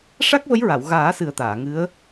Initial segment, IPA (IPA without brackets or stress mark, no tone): ʂ